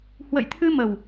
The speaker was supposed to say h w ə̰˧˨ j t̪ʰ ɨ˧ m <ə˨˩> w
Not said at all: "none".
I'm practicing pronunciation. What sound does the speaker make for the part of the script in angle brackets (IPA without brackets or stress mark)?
ə˨˩